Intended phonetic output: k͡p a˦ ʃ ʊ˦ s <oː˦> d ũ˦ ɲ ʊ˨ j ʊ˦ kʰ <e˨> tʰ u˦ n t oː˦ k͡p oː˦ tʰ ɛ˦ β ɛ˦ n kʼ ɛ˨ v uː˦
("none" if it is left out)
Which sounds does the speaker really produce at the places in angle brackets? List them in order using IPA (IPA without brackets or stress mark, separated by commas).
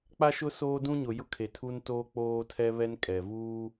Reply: oː˦, e˨